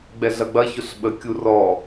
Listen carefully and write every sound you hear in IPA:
ɡ͡bɛɮɐɡ͡bɐ çʊɬɓə kʲurɔ

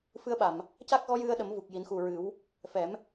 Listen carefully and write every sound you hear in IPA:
fɨ˧ə̯ɓa˨˩˨m | ca˦˥k̚ɣɔ˧˥jɨ˧ə̯ɗə˨˩˦m vu˨˩k̚ ji˨˩˦nxu˨˩ ɹɨ˨˩˦w | fɛ˨˩˦m

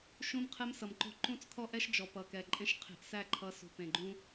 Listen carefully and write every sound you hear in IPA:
ʃũ˦mqʰɛ˦msʌ˨mǃo̤˦ ǃũ˦˨t͡skʰɔ˦ʔɛ˦ʃ d͡ʒɔ˨pʌ˨kɛ˨ ǃʼẽ˦ʃ qʰe̤˧ʔsæ˦˨ǃʰʌ˧ sṳ˨pẽ˨ɡ͡ǃũ˦

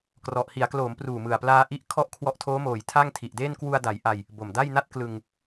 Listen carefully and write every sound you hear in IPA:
krɔ˨˩ʔ hi˩˦a̯kloː˩˦m pruː˨˩mɯ˨˩a̯plaː˧ ʔi˦˥ʔ kʰɔ˥˩ʔ kʰwɔ˦˥ʔtʰoː˦˥moː˩˦j tʰa˥˩ŋtʰi˨˩ʔdeː˥˩n kwu˧a̯ da˩˦jʔa˧j | bo˨˩mda˥˩jna˥˩t̚ klɯ˧ŋ

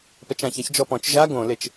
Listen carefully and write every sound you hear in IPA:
pɛt͡ʃãçaç d͡ʒɔpɔ̃t͡ʃ ʒa ɡõlet͡ʃ

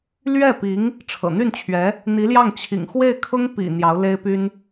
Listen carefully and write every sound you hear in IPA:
lɥɛ˥˩pi˧˥ŋ | ʈ͡ʂʰɤ̰˨˩n̪y˥˩nt͡ɕʰɥɛ˧˥ | n̪i˧˥ljɑ˥˩ŋt͡ɕʰḭ˨˩ŋ xwe˥˩ɪ̯kʰʊ˥ŋpḭ˨˩ n̪jɑ˧˥ʊ̯le˥ɪ̯py˥n

